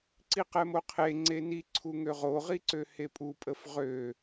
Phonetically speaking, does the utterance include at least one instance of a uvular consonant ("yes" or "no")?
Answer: yes